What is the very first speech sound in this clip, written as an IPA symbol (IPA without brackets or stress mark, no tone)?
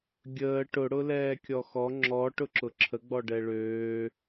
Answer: ɡʲ